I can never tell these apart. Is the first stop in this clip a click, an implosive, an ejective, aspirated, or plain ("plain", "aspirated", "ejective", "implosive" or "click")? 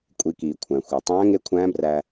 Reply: ejective